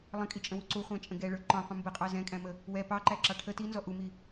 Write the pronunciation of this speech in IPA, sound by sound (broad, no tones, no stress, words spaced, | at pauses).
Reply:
lˠə̃kʼit͡ʃʼə̃wu ǀuχʷæ̃t͡ʃʼə̃ ɡɛɭə˞ ǃɔ̃qʷə̃ mbəqʼɑ zɛ̃kʼæ̃mə | wɛ pɑǃæǁɑ ʈʰə tinzɔ ʔumi